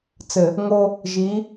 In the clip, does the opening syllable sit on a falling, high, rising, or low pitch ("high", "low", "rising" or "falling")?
low